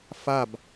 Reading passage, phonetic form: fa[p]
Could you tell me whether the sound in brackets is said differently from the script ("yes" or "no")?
yes